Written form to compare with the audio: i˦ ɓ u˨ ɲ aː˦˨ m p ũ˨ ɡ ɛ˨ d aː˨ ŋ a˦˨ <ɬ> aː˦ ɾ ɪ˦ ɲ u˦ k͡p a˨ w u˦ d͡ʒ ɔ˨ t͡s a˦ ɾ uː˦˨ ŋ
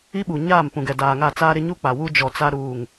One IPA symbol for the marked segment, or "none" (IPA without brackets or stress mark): t͡s